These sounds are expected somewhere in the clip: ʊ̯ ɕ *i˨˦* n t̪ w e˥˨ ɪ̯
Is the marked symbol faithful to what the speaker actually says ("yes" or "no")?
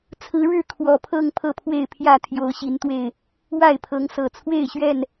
yes